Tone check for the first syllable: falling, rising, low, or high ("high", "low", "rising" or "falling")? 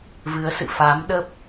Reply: rising